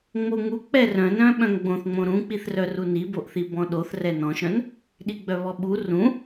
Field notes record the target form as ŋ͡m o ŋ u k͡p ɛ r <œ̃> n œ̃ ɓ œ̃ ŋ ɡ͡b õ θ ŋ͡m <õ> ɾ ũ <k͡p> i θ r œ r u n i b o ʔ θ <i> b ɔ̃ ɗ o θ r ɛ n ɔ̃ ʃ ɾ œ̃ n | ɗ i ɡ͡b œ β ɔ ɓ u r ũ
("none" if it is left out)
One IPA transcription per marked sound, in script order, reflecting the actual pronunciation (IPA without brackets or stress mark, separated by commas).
œ̃, õ, k͡p, i